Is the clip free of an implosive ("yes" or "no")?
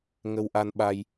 no